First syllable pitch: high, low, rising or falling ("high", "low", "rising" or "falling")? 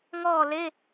falling